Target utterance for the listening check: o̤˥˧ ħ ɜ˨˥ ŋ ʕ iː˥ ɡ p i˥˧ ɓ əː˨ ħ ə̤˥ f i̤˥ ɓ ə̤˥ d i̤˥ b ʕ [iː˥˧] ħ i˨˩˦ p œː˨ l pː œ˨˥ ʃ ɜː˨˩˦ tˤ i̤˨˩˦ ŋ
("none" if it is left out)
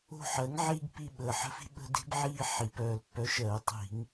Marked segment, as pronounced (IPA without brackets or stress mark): iː˥˧